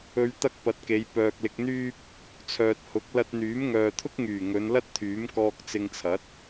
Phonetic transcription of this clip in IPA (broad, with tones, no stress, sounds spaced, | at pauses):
ɵ˧ ɥ t̪ ɐ˥ k̚ p ɐ˨˥ t̚ k e˨˧ j p œː˨ k̚ l ɪ˧ k̚ n̪ yː˥ p̚ | t͡sʰ œː˨ t̚ h ʊ˨˥ k̚ l ɐ˧ t̚ n̪ yː˨˥ m ŋ œː˨ t̪ʰ ʊ˥ k̚ ŋ yː˨˩ ŋ ɵ˨˧ n l ɐ˥ t̚ t̪ʰ yː˨˥ m k ɔː˧ k̚ t͡s ɪ˧ ŋ t͡sʰ ɐ˨˥ t̚